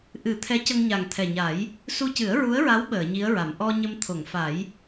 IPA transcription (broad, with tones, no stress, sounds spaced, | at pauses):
ʔ ɨ˨˩˦ t̪ʰ ɛ˧˥ c ə˧ ŋ ɲ a˨˩ ŋ t̪ʰ ɛ˨˩ ɲ a˨˩˦ j | s u˧ c ɨ˨˩˦ ə̯ ɹ u˧˥ ə̯ ɹ a˧˥ w ɓ əː˨˩˨ ɲ i˧˥ ə̯ ɹ a˨˩˨ m ʔ ɔ˧ ɲ ə˧ m t̪ʰ o˨˩˨ ŋ f a˨˩˦ j